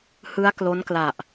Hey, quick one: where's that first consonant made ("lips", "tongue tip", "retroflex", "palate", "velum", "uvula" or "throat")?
throat